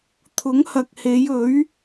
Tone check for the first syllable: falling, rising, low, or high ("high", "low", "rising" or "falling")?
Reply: rising